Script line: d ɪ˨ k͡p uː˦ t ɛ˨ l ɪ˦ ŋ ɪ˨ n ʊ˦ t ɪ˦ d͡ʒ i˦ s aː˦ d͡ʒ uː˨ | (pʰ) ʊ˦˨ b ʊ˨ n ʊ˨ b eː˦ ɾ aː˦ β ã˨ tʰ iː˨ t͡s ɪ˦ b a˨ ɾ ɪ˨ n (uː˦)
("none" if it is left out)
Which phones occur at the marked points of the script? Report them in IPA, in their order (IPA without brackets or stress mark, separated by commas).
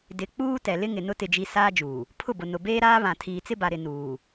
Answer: pʰ, uː˨